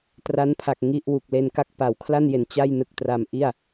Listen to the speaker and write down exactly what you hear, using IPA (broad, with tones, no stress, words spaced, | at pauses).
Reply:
tra˦˥npʰa˨˩k̚ ŋi˥˩ʔwu˨˩k̚ le˧nka˦˥k̚ pa˩˦wkʰla˥˩nje˨˩n t͡ɕa˥˩jnɯ˨˩k̚ tra˧mʔi˥˩a̯